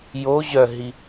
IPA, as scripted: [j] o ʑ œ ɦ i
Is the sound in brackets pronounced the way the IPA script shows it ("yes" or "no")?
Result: yes